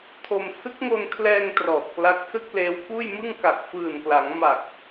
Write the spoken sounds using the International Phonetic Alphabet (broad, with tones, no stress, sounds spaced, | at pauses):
tʰ o˧ m s ɯ˦˥ k̚ ŋ o˧ n kʰ l ɛː˧ ŋ t r ɔː˨˩ t̚ k l a˦˥ k̚ s ɯ˥˩ k̚ l eː˦˥ w k uː˥˩ j m ɯ˥˩ ŋ k a˨˩ k̚ f ɯː˨˩ n k l a˩˦ ŋ m a˨˩ k̚